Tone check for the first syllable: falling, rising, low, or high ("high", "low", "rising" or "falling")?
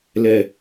low